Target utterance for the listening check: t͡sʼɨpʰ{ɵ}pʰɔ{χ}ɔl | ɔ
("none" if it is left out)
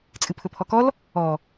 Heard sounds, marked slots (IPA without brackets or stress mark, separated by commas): ɵ, k